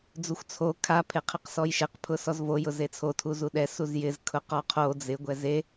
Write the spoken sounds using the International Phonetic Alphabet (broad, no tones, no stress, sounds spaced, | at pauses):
d͡z u xʷ t͡sʰ o kʰ a pʰ e qʰ ɪ q s ɔ j ʃ e q pʰ ʊ s ɔ z v o j ʊ z e t͡sʰ o tʰ u z u ɗ ɛ s u z j ɪ z kʰ ʊ q ɔ qʰ o d͡z ɪ ɡʷ ɛ z e